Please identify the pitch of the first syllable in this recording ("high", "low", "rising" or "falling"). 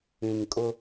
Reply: low